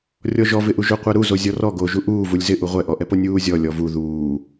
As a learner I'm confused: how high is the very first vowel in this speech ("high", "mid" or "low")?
mid